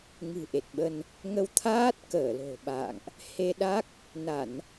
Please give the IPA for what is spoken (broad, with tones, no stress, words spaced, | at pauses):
ŋɨ̤˨˩ʔe˨˩t̚ɓə˧n | ŋə˧wt̪ʰaː˦˥t̚ kəː˧˩lo̤˨˩ɓa̰ː˧˨ŋʔ | he˧ɗa˦˥k̚ | na˧˩˨n